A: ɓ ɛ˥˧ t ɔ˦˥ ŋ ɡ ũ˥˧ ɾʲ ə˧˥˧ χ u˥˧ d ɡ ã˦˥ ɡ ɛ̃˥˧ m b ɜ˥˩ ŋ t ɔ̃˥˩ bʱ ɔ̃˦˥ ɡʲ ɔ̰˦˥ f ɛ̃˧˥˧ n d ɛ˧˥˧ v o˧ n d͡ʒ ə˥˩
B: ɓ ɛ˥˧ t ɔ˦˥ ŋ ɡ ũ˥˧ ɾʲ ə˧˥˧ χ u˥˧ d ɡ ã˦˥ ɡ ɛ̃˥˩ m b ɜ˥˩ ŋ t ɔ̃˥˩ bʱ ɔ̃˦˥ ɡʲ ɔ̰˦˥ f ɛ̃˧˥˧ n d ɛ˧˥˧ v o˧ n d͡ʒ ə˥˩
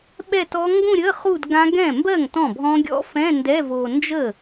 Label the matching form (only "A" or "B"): B